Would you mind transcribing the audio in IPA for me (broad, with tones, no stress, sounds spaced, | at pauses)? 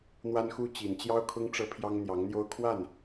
n̪ w a˥ n x u˥ t͡ɕ i˨˩ n t͡ɕ j ɑ˥ ʊ̯ kʰ ʊ˥ ŋ ʈ͡ʂ ɤ˥ pʰ j ɑ˥ ŋ n̪ j ɑ˧˥ ŋ n̪ j o˥ ʊ̯ kʰ w a˥˩ n